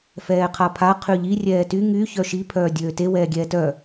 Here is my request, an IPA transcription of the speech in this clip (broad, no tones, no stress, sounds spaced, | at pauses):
f ɛː qʰ a pʰ a qʰ y ʎ i rʲ ɛː t y ŋ y ç œ ʃ i pʰ œː dʲ øː t e w ɛː ɡʲ ɛː t œ